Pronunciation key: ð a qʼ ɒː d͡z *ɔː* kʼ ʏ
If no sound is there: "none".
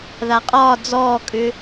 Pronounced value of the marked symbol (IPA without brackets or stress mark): ɔː